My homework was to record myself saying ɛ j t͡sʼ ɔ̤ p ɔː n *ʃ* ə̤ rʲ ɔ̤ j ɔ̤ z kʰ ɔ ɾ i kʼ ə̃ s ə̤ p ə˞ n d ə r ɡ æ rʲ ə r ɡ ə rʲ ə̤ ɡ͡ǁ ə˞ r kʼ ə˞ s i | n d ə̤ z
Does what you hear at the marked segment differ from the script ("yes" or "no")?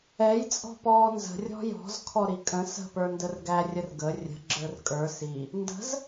yes